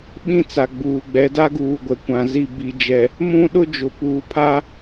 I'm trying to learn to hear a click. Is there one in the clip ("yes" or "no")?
no